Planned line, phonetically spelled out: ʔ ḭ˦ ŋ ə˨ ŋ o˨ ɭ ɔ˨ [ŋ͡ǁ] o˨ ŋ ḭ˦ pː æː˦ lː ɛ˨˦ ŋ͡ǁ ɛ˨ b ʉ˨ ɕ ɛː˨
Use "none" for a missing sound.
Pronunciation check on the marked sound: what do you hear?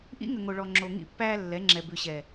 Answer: ŋ͡ǁ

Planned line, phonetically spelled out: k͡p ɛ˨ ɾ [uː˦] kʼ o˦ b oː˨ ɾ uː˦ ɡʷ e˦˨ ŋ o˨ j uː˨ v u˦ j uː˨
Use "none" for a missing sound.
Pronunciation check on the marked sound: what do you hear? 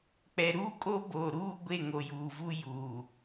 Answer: uː˦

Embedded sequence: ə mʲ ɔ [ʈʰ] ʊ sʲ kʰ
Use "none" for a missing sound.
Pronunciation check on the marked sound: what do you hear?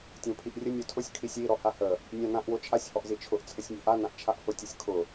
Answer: tʰ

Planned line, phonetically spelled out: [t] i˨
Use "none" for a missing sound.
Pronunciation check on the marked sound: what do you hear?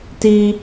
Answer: t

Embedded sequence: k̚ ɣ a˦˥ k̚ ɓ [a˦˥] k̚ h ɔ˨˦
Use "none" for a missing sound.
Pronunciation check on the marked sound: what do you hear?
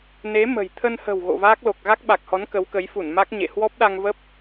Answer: a˨˩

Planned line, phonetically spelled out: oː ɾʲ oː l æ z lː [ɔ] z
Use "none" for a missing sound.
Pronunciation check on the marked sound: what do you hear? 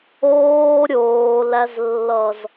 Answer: ʌ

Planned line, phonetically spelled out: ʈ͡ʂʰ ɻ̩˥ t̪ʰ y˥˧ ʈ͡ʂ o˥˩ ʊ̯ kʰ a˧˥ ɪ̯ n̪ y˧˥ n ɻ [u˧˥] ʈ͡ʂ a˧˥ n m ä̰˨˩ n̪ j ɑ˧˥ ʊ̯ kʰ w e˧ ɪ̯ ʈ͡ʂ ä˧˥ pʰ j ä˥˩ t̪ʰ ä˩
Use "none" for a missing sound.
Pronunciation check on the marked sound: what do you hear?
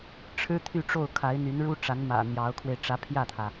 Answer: u˥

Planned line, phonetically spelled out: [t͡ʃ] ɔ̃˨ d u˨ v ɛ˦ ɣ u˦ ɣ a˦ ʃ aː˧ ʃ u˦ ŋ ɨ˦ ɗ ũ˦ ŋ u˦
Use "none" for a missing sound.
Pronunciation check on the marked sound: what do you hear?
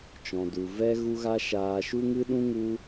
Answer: t͡ʃ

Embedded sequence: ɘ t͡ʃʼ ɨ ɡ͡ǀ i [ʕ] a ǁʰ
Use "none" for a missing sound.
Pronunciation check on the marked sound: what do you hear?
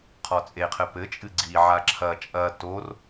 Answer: ʕ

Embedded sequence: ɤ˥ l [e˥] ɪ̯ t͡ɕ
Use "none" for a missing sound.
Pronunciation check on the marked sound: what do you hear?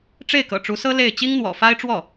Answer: e˥˩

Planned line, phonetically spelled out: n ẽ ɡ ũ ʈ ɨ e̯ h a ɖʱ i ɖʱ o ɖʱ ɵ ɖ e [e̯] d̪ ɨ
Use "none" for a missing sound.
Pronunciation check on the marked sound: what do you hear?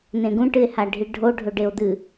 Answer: o̯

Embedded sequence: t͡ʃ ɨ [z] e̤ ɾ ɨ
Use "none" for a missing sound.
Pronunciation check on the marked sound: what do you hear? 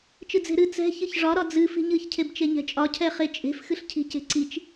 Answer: d͡z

